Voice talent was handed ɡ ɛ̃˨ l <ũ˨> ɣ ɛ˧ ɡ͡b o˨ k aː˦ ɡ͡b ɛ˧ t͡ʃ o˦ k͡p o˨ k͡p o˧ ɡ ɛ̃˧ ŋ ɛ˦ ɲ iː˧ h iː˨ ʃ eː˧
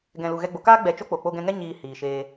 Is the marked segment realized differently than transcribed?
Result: yes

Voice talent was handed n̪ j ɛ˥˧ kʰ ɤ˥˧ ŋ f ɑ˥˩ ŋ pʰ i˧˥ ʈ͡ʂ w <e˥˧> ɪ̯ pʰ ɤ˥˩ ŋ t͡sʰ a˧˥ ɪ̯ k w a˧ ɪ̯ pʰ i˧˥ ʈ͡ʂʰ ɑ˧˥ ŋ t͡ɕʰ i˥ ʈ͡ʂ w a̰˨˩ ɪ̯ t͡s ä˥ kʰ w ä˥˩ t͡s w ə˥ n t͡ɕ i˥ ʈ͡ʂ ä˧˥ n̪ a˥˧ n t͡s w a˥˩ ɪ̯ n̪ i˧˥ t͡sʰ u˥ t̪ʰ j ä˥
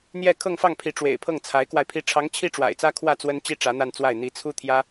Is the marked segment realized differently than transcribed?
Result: yes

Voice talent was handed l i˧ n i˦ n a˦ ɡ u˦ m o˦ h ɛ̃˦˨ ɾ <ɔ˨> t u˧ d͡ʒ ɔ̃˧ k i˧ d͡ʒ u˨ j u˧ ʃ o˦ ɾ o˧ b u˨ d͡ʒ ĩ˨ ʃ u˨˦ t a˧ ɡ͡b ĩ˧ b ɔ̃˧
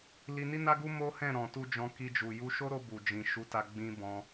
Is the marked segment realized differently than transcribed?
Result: yes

